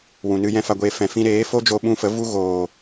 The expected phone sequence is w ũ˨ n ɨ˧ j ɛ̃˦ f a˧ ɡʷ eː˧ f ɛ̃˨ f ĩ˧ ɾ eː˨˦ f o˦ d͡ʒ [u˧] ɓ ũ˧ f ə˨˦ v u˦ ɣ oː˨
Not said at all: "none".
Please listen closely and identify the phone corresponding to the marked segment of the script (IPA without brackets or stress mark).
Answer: o˧